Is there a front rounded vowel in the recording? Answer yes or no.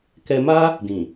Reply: no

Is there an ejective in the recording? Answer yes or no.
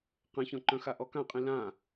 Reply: yes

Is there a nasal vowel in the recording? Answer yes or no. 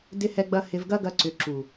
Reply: no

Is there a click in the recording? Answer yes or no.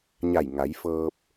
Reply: no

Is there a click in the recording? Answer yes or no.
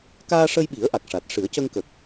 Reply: no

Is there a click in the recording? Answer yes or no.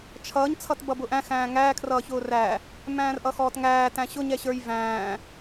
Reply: no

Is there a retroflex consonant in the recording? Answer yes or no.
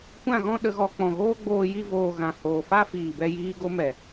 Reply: no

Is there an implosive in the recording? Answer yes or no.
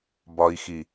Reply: no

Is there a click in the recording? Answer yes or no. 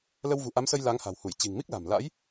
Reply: no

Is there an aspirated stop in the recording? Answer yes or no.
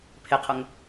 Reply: yes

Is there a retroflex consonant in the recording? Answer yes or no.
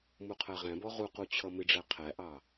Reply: yes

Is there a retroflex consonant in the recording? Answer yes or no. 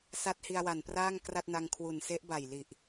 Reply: no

